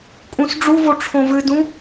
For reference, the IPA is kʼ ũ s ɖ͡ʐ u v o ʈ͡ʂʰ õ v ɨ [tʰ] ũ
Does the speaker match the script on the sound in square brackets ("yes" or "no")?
no